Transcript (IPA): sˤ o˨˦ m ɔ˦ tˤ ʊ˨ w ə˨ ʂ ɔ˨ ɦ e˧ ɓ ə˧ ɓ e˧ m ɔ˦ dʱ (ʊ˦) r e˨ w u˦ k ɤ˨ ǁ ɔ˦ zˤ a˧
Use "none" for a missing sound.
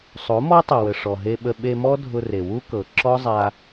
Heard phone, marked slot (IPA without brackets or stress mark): ʊ˧